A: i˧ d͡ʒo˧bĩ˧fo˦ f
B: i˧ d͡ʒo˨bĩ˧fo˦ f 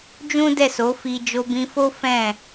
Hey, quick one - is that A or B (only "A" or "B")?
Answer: A